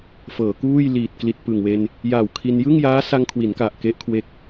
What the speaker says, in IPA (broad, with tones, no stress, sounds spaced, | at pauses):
f ɤː˩˦ k uː˥˩ j l iː˨˩ t̚ k l i˨˩ t̚ p ɯ˨˩ ŋ w e˧ n | j a˨˩ w kʰ i˧ n j ɯ˥˩ ŋ j aː˦˥ s a˧ ŋ kʰ w i˩˦ n k a˨˩ ʔ k e˦˥ ʔ kʰ w e˦˥ k̚